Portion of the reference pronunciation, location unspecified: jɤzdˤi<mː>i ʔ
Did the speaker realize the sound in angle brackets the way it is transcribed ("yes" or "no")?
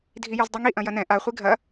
no